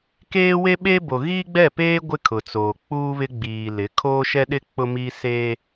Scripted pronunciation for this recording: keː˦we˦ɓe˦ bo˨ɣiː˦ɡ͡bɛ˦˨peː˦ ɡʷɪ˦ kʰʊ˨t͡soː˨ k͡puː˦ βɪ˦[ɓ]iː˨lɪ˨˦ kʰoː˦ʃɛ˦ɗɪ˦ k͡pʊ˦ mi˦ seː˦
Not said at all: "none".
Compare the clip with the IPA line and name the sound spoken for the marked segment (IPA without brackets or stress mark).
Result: ɡ͡b